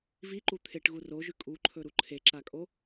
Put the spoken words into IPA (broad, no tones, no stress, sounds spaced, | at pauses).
v i ǃ u t̪ʰ e ʈ ɣ u r o ʒ ʉ kʼ u ǃʰ ɵ ɾ u ǃʰ e ǁ a kʼ o